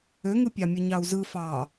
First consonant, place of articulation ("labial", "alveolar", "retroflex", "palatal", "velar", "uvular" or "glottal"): velar